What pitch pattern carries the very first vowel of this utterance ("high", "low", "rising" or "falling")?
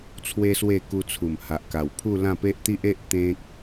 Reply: high